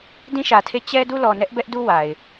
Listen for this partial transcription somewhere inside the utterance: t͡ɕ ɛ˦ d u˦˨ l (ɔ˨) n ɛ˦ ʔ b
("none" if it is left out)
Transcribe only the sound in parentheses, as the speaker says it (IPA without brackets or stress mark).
ɔ˨